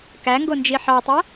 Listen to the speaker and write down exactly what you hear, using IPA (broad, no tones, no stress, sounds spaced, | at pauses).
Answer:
k æ ŋ ɡ o n d͡ʒ i ħ ɑ tˤ æ